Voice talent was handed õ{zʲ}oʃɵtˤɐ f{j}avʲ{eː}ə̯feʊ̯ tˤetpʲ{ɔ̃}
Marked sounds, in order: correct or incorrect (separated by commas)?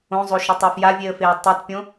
incorrect, correct, incorrect, incorrect